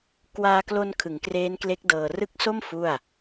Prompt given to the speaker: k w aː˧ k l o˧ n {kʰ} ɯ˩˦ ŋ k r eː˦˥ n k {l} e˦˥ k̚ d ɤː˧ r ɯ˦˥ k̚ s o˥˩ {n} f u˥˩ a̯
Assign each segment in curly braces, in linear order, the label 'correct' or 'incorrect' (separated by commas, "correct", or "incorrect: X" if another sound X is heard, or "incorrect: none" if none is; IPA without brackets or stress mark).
correct, correct, incorrect: m